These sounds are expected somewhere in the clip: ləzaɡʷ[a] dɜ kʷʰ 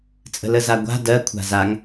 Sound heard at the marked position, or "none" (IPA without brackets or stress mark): a̤